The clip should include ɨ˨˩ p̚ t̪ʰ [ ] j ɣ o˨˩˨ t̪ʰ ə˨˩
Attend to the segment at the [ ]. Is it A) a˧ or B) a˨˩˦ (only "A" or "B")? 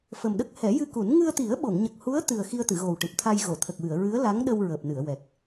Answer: A